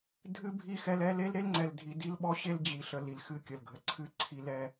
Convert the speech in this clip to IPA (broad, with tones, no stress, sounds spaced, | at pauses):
dʱ ɨ˦ bʱ i˦˨ x ɛ˦ l ɛ˦ l e˦ l ɾ e˦ l ŋ͡ǀ ɛ˨ l dʱ i˨ d i˦ l ɓ ɔ˦ ɕ e˦ l d͡ʑ i˨ ɬ ə˨ l i˨ l x ɨ˦ kʲ ə˨ l ɡʱ ə˨ ǀʰ ɨ˦ ǀʰ i˦ l ɛ˦